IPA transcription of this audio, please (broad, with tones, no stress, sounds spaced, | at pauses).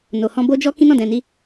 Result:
n o˨ h ɔ̃˧ b o˦ d͡ʒ ɔ˦ k ĩ˦ n ɔ̃˦˨ d ɛ̃˨ n i˧